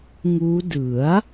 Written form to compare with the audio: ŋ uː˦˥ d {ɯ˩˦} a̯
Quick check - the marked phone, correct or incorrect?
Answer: correct